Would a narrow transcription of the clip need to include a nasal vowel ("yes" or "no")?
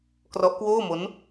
no